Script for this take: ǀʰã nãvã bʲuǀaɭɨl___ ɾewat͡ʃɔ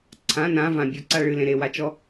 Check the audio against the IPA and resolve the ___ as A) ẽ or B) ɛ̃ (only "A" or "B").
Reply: A